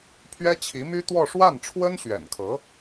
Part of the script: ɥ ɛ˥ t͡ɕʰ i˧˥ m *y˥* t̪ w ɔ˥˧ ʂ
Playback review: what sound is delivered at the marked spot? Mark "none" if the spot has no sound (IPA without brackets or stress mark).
y˥